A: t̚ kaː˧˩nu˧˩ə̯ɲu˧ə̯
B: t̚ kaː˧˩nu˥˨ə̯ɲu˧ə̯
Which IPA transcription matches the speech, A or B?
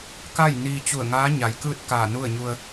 B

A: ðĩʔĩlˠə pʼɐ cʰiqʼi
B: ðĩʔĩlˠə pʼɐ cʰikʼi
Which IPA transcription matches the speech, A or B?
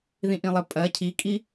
B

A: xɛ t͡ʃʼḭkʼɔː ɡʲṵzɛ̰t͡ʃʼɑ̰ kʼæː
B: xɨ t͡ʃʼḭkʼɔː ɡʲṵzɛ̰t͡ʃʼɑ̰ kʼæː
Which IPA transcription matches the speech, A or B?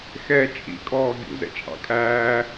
A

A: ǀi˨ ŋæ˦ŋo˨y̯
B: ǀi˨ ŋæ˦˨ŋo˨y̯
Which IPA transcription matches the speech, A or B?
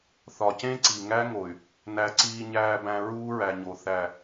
A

